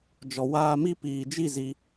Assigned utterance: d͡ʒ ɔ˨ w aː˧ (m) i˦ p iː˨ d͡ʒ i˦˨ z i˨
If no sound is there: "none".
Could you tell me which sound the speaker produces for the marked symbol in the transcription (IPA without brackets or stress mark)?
m